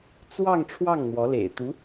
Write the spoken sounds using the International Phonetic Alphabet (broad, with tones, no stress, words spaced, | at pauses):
t͡swɑ˥˧ŋ ʈ͡ʂʰwɑ˥˩ŋn̪wɔ˧˥lḛ˨˩ɪ̯ t̪u˧˥